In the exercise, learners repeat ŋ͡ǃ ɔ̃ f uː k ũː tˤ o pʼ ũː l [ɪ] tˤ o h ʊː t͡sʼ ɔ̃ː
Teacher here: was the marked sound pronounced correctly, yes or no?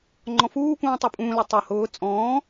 no